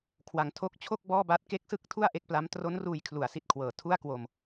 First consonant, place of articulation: velar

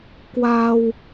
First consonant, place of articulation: velar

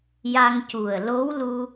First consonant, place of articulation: palatal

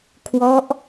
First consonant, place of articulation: velar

